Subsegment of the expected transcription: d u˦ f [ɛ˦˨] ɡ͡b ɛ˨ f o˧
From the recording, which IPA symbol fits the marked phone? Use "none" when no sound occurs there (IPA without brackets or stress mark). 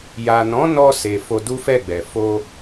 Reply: ɛ˦˨